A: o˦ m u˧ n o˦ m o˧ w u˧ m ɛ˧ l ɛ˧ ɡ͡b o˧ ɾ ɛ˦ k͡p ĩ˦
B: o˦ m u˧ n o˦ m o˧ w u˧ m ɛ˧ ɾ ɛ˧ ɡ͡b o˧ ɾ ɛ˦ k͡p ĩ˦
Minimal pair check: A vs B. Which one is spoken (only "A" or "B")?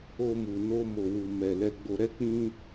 A